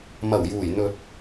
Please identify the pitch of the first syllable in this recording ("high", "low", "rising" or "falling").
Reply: low